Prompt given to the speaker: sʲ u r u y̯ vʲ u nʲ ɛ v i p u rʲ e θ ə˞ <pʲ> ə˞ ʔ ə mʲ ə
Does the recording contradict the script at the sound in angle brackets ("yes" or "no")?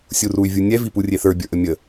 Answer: yes